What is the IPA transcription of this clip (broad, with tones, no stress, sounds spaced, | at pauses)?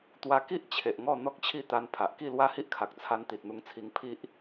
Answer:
t̪ w a˧ k i˦ ʔ t͡ɕʰ e˨ ʔ ŋ ɔ˥˧ n̪ ɔ˦ k̚ t͡ɕʰ i˥˧ t̪ a˧ n pʰ a˨ ʔ k i˥˧ l w a˥˧ h i˦ ʔ kʰ a˨ k̚ t͡sʰ a˧ n t̪ i˨ t̚ n̪ u˧ ŋ t͡sʰ i˧ ŋ pʰ i˦ ʔ